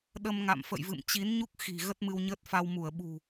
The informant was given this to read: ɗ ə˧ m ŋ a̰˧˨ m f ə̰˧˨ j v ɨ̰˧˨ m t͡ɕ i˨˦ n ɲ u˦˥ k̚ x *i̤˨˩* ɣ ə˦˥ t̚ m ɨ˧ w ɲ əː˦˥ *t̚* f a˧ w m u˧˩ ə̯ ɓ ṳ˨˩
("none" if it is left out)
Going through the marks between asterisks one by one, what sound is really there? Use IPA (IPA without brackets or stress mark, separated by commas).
i̤˨˩, t̚